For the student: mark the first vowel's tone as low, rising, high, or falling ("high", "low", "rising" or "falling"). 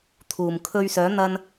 low